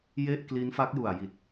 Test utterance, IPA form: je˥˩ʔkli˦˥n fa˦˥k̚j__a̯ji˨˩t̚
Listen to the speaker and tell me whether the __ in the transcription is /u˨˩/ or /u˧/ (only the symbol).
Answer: u˨˩